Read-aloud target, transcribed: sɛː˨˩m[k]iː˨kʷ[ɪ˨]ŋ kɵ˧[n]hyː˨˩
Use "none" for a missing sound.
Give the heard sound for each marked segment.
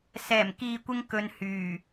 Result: k, ɪ˧, n

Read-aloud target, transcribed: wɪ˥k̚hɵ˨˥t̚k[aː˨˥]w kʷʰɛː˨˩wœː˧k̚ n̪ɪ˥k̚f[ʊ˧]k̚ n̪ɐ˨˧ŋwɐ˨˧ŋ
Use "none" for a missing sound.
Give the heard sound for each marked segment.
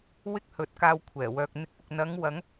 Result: aː˧, ʊ˧

